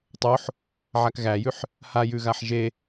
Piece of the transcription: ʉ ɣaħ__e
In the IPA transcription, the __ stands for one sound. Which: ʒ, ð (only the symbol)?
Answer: ʒ